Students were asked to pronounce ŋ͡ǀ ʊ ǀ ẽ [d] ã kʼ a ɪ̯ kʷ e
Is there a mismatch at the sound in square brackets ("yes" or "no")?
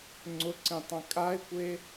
yes